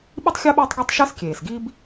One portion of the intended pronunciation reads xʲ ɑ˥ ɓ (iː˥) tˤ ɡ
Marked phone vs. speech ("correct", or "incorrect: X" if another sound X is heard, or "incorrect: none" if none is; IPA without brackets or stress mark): correct